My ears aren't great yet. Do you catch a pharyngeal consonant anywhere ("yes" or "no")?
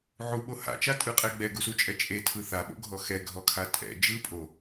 yes